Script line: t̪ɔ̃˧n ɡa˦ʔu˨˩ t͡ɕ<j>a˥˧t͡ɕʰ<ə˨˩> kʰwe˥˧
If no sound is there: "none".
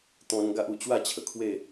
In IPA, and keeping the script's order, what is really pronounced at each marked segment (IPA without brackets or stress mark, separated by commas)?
w, ə˨˩